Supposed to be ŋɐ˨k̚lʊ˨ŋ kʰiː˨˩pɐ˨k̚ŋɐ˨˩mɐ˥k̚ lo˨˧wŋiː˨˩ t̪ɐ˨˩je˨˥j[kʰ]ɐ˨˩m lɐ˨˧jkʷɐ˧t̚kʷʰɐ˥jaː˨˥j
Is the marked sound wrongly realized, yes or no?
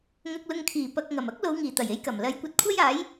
yes